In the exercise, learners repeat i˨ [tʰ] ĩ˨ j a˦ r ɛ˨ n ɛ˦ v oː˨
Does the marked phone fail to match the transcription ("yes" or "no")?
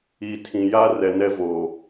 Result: no